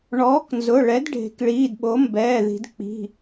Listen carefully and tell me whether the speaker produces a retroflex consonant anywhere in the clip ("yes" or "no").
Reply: yes